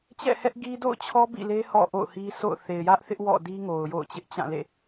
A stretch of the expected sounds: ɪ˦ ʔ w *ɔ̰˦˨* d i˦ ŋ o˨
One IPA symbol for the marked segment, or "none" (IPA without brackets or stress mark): ɔ̰˦˨